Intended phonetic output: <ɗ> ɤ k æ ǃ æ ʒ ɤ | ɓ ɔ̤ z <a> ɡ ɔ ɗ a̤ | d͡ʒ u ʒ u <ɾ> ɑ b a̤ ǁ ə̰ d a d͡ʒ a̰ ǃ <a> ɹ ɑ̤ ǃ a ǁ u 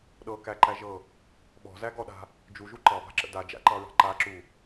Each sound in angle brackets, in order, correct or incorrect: correct, incorrect, incorrect, incorrect

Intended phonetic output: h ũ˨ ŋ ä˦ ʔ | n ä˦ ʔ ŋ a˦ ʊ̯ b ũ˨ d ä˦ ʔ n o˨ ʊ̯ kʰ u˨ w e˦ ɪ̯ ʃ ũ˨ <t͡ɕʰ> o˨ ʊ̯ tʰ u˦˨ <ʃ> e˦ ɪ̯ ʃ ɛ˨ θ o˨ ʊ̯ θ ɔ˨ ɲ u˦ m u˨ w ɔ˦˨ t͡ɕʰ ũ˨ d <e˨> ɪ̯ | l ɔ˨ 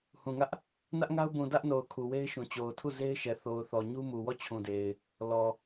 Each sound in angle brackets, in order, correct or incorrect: incorrect, incorrect, correct

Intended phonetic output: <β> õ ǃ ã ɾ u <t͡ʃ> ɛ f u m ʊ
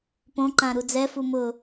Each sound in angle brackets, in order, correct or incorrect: incorrect, incorrect

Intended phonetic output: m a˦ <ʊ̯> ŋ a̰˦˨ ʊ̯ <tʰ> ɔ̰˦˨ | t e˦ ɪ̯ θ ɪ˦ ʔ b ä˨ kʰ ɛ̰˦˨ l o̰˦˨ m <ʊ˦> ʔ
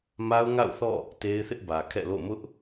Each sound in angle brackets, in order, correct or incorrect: correct, incorrect, correct

